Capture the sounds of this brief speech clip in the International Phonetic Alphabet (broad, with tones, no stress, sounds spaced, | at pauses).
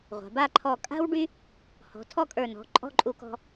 ʁʷ a̤˩˧ b a˥˧ ǃʰ ɔ˧˩ kʼ a̤˥ w ɖ y˥ | h ɔ̤˩˧ tʰ ɔ˥˧ kʼ ə˞˧˩ n ɔ̤˩˧ ǃʼ ɔ̤˥˧ ǃʼ u˧ k ɔ̤˧